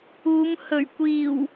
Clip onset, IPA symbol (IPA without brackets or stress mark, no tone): uː